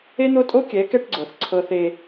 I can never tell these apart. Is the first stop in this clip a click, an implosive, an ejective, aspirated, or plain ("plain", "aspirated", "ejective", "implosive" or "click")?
ejective